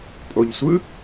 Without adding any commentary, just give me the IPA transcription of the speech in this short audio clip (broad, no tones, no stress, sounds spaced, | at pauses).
pʼ o ʎ sʷ ɯ